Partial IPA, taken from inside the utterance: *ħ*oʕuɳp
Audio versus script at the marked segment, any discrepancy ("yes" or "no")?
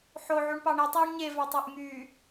no